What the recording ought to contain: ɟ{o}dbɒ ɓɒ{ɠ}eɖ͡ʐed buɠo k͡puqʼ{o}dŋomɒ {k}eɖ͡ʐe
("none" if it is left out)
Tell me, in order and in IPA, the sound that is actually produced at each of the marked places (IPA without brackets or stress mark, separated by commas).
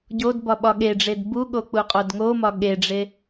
o, ɠ, o, ɠ